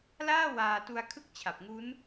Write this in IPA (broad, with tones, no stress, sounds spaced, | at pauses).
l aː˥˩ w aː˧ t u˧ a̯ kʰ ɯ˥˩ k̚ t͡ɕʰ a˨˩ p̚ ŋ u˦˥ n